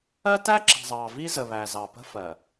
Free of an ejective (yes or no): yes